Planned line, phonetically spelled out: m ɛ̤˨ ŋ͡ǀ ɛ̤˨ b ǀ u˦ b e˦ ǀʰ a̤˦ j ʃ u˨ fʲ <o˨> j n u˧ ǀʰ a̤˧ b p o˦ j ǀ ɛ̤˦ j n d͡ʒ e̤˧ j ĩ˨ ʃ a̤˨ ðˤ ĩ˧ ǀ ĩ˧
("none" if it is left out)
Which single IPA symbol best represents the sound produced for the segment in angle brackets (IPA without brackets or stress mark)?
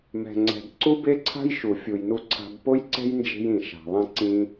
u˨